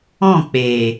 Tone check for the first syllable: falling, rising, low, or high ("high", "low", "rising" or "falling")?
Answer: falling